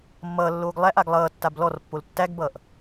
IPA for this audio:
mːʌːlːoːɡ lˠæʔaɡ lˠʌːtːab lɔrpːol tːæɡbʌːʔ

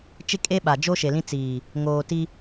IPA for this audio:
t͡ʃɪ˦kʼe˦ɓa˨ d͡ʒo˦ʃe˨lĩ˦ t͡siː˨ | ŋoː˨ ti˦

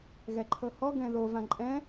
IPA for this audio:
ɣɛǃʰɤhɔ ɡɛ̃ðo vãǃʼɛ̃

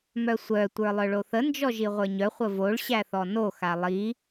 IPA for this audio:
mœsʷœ tʷə˞lˠœɭoθə nd͡ʒɔʒiʁʷə˞ɲœ χʷəvoɭ ɕæθɔno xalˠi

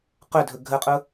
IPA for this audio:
qɵdʱɵ ɡʱəqʼʊ

